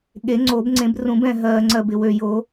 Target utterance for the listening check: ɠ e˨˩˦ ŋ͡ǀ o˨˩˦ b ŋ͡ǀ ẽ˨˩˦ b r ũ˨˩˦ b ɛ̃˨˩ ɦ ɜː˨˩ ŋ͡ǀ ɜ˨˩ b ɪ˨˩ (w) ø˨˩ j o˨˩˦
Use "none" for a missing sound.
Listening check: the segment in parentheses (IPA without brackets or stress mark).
w